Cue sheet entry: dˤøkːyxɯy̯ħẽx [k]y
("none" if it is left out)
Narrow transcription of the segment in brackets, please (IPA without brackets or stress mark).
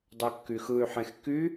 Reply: k